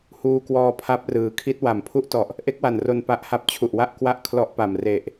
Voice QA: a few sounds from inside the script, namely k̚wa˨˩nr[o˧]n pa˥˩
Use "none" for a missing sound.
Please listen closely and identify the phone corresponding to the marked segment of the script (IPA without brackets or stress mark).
o˧